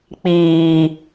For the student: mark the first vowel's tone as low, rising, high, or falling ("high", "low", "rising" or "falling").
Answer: low